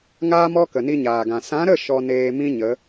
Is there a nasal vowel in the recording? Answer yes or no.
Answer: yes